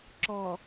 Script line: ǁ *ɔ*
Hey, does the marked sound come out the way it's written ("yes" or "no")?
yes